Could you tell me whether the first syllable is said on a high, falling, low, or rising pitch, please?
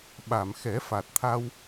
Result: low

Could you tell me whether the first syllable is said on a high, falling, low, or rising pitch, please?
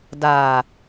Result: low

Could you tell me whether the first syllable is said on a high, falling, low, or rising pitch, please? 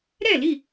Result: falling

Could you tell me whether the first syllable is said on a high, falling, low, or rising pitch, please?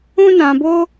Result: high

